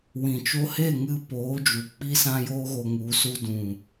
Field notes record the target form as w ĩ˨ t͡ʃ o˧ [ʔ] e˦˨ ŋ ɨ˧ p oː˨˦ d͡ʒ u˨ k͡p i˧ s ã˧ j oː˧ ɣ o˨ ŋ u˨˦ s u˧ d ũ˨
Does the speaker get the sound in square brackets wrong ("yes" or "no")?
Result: yes